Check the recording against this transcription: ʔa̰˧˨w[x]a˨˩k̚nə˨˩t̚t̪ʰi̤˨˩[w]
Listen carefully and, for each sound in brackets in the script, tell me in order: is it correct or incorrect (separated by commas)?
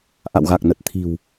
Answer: incorrect, correct